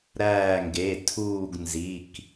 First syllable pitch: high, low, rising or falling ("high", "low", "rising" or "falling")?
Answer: falling